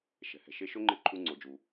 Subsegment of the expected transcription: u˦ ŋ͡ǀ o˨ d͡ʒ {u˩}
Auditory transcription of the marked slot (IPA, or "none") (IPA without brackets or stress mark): u˨